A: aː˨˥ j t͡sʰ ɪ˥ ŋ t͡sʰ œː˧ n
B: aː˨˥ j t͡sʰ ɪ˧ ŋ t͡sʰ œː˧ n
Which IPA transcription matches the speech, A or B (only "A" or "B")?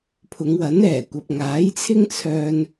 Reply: A